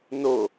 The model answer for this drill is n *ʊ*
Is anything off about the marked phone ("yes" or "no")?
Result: no